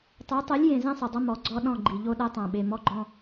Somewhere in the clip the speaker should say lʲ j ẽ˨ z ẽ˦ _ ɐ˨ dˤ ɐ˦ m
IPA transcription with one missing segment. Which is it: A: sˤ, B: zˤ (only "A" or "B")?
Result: A